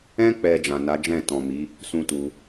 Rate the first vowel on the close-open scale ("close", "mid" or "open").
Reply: mid